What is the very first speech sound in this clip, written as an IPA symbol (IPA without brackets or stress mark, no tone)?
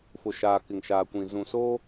f